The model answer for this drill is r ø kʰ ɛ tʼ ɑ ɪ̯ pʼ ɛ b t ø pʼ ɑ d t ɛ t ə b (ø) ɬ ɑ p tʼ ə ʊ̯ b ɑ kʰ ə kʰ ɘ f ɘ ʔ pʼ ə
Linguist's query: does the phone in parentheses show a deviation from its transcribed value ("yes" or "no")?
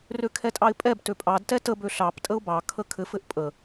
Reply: no